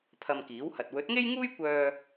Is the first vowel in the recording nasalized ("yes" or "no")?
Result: no